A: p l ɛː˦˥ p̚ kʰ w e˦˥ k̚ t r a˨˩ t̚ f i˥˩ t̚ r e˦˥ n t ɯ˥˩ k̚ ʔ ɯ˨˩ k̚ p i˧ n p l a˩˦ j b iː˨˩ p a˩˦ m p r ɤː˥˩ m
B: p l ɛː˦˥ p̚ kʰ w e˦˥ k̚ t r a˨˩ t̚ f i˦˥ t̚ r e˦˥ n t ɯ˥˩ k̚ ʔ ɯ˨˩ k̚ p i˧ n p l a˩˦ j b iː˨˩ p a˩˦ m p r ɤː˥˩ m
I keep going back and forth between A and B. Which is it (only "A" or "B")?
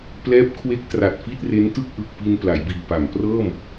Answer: A